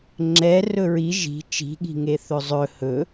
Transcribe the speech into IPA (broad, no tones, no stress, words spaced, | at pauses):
ŋ͡ǁɛ rɵɹi ʒi̤ t͡ʃi̤ɠi̤ŋe θɵzˤɵ hɵ